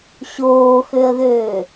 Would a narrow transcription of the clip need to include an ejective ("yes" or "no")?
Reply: no